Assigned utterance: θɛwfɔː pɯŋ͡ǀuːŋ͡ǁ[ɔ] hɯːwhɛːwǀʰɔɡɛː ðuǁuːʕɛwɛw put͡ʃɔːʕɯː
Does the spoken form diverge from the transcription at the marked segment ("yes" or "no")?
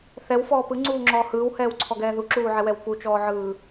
yes